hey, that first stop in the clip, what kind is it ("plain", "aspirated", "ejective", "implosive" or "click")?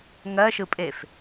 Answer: ejective